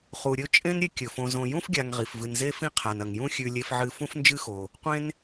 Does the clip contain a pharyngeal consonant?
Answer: yes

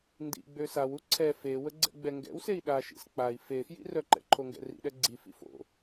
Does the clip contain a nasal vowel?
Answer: no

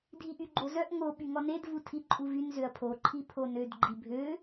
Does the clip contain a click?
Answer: yes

